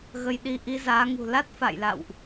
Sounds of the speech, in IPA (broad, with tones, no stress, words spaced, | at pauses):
ɣə˧jɗi˧ ʔi˧zaː˨˦ŋṳ˨˩ la˦˥t̚ fa̰˧˨jla̰˧˨wʔ